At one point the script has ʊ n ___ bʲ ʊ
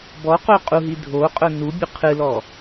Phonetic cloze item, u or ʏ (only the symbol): u